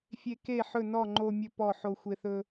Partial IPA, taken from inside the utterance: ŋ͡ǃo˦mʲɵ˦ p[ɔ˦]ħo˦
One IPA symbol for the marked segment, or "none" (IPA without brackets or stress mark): ɔ˥˨